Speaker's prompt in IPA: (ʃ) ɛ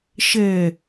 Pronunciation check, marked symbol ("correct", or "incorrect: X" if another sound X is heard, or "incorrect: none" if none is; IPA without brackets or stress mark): correct